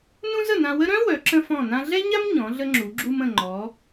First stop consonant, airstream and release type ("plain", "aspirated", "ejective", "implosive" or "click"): click